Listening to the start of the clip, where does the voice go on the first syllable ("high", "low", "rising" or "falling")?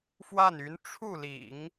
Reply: falling